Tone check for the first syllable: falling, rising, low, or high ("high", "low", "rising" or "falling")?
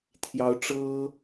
high